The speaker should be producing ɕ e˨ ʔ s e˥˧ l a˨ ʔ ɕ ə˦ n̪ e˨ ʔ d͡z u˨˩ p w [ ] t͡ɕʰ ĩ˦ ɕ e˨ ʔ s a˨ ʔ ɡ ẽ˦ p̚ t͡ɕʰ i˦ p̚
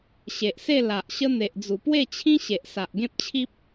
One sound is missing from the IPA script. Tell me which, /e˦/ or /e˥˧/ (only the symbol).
e˥˧